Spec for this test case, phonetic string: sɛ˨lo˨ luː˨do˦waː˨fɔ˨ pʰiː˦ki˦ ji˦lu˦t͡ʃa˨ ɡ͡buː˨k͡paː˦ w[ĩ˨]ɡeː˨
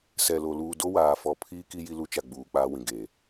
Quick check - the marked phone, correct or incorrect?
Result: correct